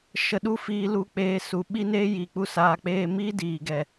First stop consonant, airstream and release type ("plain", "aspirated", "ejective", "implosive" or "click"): implosive